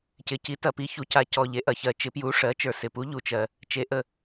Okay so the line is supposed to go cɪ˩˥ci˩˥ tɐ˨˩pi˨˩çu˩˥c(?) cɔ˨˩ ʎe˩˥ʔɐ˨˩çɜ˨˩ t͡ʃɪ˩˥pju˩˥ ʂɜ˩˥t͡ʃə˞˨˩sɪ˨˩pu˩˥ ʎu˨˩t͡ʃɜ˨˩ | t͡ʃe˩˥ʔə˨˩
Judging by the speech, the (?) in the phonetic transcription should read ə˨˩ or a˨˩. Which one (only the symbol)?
a˨˩